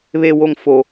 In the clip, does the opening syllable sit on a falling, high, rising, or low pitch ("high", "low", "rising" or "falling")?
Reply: low